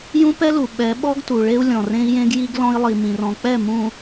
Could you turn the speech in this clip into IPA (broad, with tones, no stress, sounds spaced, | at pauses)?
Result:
j ũ˦ p ɛ˦ l u˨ ɓ ɛ˨˦ ɓ ɔ˦ ɡ t u˨ ɭ e˦ u̯ lʲ ɔ̃˨ r ẽ˦ i̯ j ẽ˦ ɡ j i˦ ɡ l ɔ̃˦ i̯ lˠ i˨ m ĩ˨ r ɔ̃˨ k͡p ɛ˦˨ m ũ˨